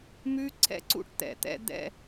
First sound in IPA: m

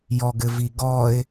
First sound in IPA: j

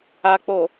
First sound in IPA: a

